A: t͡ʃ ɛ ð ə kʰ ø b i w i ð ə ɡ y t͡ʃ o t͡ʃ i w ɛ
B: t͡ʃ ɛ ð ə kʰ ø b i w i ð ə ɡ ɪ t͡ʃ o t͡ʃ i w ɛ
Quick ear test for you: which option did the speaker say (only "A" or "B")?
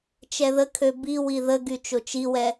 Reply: A